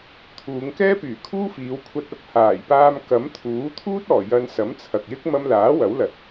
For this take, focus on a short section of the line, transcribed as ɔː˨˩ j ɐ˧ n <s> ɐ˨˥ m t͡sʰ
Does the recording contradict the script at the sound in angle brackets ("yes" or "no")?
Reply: no